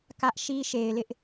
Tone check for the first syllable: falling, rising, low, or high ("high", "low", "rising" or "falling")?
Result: high